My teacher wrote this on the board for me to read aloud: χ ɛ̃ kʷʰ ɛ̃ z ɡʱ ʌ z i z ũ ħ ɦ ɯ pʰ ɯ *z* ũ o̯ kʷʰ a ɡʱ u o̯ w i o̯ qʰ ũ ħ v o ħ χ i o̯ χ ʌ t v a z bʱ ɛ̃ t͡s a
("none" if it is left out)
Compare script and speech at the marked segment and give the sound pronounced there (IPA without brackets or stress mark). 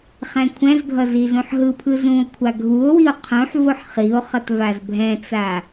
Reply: z